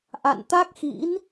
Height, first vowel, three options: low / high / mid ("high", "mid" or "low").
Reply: low